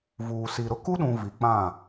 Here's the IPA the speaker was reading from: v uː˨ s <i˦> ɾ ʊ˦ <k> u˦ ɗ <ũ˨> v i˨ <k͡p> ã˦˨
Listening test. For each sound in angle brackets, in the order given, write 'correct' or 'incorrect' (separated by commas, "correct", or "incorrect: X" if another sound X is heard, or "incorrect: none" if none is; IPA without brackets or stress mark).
incorrect: i˨, correct, correct, correct